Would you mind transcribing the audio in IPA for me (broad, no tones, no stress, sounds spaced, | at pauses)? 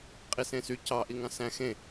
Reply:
qʼ i s ẽ s y c ɑ ʔ i ŋ ɑ̃ s æ̃ x ẽ